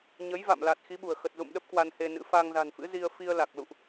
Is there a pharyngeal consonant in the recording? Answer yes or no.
no